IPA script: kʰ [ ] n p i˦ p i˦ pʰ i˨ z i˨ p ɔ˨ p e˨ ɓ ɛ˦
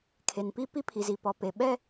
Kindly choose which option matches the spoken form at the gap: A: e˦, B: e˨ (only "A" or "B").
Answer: B